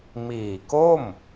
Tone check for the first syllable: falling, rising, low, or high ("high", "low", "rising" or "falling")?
low